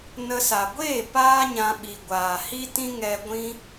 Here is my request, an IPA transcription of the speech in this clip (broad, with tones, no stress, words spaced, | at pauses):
nə˧sa˨ ɡʷeː˦˨ paː˦ɲã˧ ɓi˨ɡʷaː˨hi˦tĩ˦ ŋɛ˧ɡʷĩ˦